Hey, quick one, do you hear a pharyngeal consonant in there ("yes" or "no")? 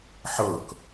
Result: yes